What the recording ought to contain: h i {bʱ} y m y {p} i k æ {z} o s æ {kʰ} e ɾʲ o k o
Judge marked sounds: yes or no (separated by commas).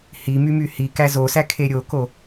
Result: no, no, yes, yes